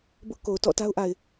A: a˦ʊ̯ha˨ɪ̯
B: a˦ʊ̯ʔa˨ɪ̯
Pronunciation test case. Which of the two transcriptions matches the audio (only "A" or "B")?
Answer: B